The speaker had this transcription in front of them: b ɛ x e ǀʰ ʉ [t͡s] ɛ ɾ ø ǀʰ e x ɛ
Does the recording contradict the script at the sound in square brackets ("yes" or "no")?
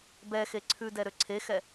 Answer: yes